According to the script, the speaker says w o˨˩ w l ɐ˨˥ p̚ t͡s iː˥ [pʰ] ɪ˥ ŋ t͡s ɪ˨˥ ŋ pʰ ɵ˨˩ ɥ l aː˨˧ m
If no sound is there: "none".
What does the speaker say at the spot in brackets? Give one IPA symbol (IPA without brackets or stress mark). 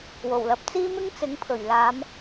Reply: m